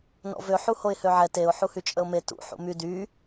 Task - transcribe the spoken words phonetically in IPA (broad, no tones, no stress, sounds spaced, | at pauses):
n ɔ̰ v ø ħ u h o ɪ̯ h ø ʕ ɛ t e ʊ̯ ħ u h y t͡ʃʼ ə ʊ̯ m e t ṵ ħ ṵ m y d y